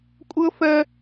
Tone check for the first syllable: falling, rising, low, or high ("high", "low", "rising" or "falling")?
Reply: high